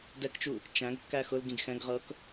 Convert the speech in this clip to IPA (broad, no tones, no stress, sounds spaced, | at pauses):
d ɛ k t͡ʃ u | t͡ʃ æ̃ ɡ kː æ x ʊ l ɡ ĩ ɡ x ɛ̃ ɡ ʁ ɤ k